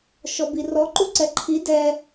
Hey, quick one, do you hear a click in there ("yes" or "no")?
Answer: yes